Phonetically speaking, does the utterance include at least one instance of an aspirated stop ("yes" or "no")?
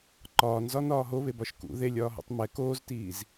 no